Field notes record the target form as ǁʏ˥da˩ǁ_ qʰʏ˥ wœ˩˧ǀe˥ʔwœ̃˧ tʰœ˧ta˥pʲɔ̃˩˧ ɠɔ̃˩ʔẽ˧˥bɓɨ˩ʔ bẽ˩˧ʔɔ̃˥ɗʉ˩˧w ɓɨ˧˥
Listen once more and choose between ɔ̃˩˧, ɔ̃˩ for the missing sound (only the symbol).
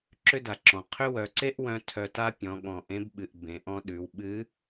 ɔ̃˩